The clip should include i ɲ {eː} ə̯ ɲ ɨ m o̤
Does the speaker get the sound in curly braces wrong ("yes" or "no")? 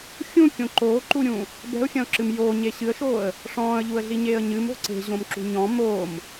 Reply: no